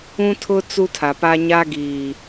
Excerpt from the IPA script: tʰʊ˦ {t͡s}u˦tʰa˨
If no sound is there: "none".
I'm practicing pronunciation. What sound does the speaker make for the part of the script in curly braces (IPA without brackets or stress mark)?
t͡s